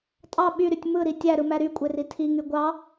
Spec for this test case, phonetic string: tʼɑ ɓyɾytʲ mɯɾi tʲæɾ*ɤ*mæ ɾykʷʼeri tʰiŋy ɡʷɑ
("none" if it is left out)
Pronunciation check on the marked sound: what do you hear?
ɯ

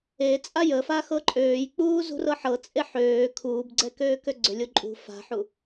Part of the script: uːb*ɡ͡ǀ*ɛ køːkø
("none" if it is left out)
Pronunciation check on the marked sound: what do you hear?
ɡ͡ǀ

